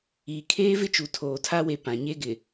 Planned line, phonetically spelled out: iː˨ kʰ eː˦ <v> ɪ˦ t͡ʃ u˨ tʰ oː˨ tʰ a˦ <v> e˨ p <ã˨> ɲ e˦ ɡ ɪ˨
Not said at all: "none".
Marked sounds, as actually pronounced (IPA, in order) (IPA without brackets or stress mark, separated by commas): v, w, ã˨